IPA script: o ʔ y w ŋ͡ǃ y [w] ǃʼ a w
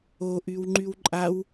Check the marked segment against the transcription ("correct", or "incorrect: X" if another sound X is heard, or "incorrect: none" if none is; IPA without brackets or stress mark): correct